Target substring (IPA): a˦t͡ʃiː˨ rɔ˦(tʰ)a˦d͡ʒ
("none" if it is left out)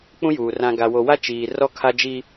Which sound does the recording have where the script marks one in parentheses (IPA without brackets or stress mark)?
kʰ